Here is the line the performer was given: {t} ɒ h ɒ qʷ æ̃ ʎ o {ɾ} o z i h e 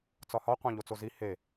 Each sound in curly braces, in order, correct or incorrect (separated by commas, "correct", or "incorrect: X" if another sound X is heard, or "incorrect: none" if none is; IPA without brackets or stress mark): incorrect: t͡s, incorrect: t͡s